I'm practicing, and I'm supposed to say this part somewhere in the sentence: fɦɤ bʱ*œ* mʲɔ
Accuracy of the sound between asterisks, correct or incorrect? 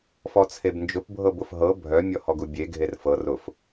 correct